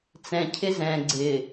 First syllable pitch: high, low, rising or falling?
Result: low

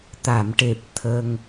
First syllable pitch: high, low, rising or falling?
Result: low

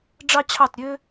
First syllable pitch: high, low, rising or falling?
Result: high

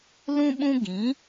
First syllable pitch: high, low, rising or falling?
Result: high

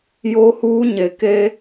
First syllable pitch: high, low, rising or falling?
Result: high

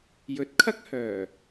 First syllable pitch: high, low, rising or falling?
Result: rising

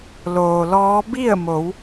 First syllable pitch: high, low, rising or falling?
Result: low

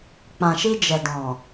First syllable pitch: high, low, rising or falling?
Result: low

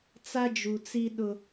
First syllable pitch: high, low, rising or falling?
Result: high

